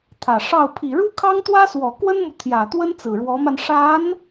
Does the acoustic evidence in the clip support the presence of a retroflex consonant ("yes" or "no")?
yes